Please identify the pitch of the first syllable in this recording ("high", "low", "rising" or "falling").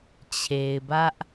low